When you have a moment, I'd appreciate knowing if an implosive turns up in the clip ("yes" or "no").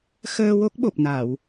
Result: yes